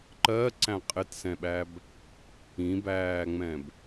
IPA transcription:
ǃ ɜ ǀ æ̃ qʼ ɪ t s ɛ̃ ɓ æ b | ĩ b æː ŋ͡m ɛ̃ b

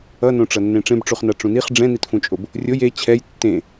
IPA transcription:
ʌ n õ ʈ͡ʂ ʌ nː ẽ ʈ͡ʂ ẽ b ʈ͡ʂ u χ n a ʈ͡ʂ ũ n i χ ɖ͡ʐ ɛ̃ n i t f ũ t͡ʃʼ o b | rʲ o j e t͡ɕʰ ɛ j tː ẽ

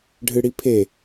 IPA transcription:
ɖʱ ɨ ɽ i pʰ e

